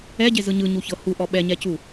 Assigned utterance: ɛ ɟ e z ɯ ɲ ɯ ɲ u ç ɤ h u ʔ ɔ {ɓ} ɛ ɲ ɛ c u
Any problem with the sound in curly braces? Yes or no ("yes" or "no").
no